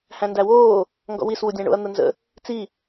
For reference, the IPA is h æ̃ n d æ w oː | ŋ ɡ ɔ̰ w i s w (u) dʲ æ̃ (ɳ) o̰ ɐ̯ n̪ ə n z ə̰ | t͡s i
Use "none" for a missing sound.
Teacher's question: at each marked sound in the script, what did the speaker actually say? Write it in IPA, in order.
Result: u, ɳ

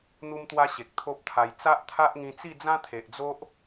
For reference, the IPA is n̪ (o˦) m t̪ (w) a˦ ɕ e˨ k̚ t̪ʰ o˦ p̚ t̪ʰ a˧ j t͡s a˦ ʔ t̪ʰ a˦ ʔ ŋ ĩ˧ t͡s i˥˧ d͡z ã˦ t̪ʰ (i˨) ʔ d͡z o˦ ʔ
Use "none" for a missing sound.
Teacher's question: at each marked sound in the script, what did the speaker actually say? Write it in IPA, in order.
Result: u˦, w, e˨

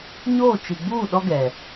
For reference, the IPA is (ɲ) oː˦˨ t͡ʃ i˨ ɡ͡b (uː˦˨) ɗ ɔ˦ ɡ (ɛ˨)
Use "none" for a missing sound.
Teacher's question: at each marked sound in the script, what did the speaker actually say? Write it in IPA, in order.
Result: ɲ, uː˦˨, ɛ˨

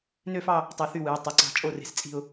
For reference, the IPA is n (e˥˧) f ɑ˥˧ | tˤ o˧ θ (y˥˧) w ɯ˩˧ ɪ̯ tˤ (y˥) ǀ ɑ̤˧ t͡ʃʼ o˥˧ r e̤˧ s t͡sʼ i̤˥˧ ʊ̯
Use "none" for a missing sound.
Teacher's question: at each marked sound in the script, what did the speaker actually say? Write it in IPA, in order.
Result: ø˥˧, y˥˧, y˩˧

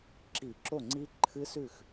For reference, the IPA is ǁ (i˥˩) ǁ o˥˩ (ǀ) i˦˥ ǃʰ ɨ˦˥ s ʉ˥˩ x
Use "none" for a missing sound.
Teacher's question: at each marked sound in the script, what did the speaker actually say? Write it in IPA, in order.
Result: i˧˩˧, ŋ͡ǀ

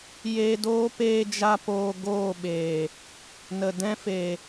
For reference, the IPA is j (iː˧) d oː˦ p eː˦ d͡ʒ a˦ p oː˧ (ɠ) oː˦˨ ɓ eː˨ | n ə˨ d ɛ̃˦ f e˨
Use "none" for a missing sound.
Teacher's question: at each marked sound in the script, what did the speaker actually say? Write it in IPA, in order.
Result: eː˧, ɡ

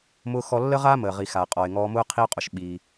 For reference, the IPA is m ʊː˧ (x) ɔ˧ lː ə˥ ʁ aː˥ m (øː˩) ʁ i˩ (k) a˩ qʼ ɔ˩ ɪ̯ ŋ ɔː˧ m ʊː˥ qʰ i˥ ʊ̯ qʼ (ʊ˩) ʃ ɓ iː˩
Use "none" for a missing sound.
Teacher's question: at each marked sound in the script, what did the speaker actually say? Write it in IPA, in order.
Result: x, əː˩, x, ʊ˩

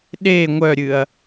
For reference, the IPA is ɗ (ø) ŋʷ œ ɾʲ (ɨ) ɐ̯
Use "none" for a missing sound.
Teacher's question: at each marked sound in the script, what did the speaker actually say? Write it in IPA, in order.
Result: e, ɨ

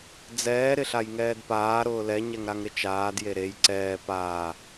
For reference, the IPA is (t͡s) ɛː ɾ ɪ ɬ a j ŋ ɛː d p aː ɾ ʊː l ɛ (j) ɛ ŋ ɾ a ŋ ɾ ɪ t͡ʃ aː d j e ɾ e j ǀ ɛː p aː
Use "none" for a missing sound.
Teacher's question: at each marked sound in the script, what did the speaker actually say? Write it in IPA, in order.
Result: d͡z, ɲ

